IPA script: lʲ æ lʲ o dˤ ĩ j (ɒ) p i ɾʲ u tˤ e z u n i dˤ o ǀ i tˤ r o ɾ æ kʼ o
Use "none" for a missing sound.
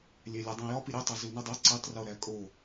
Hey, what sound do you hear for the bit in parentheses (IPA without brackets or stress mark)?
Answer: ɒ